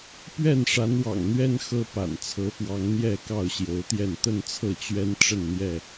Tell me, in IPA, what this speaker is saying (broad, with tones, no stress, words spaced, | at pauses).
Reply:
pɥɛ˥˨nʂa˨˦nwɑ̰˨˩ŋ n̪ɥɛ˦n xɤ˦pa̰˨˩n t͡sʰɤ˨˦fwɑ˨˦ŋ n̪jɛ˥˨kɑ˥˨ʊ̯ɕjo˨˦ʊ̯t̪jɛ˥˨n t̪ə˥˨nt͡sʰɤ˥˨t͡ɕɥɛ˦n ʈ͡ʂə˥˨nn̪jɛ˥˨